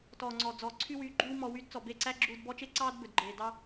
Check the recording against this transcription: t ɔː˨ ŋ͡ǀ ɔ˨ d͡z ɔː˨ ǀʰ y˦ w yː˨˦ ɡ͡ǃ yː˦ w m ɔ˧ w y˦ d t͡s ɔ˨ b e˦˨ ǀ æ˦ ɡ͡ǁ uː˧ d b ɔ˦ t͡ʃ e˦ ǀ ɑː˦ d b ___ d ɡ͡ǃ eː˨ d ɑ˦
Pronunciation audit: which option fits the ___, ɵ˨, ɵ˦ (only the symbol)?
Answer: ɵ˨